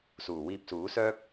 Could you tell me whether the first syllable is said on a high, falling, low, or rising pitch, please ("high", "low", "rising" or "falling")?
low